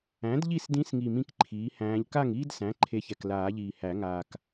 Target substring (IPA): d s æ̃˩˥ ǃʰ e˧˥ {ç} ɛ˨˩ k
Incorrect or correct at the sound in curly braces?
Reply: correct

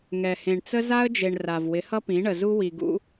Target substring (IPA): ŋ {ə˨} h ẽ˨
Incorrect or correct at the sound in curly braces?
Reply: incorrect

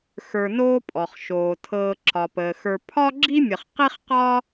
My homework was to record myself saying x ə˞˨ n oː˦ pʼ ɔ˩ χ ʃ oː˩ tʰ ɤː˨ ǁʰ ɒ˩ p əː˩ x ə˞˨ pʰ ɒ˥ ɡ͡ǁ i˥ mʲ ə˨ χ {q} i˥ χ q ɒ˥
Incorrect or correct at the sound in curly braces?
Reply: correct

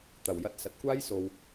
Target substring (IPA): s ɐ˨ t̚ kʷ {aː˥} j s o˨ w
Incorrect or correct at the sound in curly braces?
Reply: correct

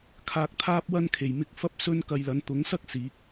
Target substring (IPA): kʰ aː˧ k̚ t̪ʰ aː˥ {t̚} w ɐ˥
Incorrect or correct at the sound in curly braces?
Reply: incorrect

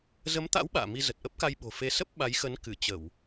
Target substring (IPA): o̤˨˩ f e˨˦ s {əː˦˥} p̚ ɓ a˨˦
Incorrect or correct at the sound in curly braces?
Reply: incorrect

